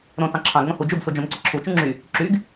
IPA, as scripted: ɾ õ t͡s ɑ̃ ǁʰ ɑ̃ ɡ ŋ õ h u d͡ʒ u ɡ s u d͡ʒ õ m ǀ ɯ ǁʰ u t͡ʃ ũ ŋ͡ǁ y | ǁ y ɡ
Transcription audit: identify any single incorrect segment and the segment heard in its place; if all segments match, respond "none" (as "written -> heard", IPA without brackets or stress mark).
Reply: none